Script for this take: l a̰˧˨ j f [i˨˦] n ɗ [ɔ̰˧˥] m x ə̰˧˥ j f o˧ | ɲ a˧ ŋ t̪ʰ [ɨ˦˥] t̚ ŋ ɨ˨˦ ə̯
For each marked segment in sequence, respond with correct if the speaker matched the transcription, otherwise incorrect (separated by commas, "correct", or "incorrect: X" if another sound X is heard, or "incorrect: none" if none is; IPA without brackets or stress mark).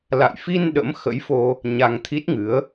incorrect: i˧, incorrect: ə̰˧˥, incorrect: i˦˥